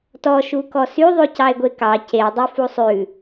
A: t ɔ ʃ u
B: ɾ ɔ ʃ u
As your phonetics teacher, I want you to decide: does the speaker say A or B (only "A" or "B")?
A